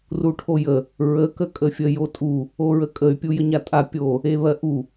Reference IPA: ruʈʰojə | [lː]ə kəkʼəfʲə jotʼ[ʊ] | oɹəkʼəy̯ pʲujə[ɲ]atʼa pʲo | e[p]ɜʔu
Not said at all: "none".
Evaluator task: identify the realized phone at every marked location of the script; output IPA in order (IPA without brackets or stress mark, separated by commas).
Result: ɹ, u, ɲ, β